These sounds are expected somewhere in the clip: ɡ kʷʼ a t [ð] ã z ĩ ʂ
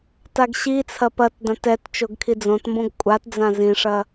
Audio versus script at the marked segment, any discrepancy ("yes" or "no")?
yes